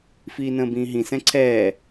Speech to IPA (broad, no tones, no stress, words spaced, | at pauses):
fiːnə̃ːbĩːɦĩ sɛ̃ǀʰɛː